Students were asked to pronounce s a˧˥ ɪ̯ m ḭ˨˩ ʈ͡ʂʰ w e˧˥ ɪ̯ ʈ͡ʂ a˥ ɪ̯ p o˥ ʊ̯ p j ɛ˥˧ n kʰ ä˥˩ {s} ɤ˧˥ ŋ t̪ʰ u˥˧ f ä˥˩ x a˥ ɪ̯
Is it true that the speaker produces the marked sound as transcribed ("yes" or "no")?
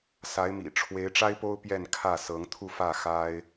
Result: yes